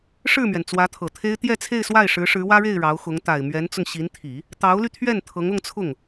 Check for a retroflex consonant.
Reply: present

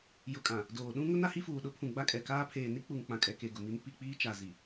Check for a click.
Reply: absent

